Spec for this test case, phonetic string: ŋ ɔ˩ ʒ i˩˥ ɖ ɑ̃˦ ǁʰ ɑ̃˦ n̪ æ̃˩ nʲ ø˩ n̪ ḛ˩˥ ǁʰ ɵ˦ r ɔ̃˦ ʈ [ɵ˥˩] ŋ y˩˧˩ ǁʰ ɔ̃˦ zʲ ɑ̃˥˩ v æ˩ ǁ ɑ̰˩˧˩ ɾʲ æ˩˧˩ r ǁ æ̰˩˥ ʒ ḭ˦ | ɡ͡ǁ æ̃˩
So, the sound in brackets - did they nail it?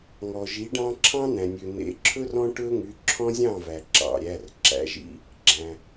no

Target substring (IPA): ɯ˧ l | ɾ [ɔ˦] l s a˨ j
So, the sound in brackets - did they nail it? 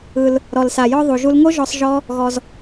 no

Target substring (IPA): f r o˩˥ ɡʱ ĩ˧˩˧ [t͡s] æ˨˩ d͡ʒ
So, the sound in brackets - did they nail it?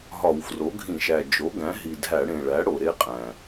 no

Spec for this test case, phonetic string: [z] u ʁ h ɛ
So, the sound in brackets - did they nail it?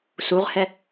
no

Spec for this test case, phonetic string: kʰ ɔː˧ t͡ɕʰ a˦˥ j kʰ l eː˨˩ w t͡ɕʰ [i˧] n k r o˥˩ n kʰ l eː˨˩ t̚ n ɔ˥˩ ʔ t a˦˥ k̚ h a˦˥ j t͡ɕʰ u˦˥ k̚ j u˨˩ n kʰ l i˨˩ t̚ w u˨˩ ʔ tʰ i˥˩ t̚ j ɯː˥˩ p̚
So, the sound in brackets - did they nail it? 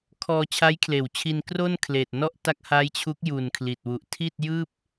yes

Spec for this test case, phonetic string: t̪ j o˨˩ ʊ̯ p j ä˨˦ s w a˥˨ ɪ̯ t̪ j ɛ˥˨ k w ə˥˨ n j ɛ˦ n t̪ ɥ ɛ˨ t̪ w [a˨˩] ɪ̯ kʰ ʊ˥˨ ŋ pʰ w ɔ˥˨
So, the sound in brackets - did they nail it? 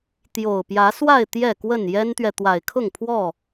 yes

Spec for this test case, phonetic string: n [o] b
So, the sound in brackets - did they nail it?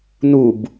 no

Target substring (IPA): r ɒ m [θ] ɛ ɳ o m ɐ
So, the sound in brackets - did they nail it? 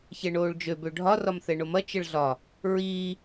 yes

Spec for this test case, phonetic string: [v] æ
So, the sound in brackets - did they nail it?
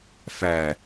no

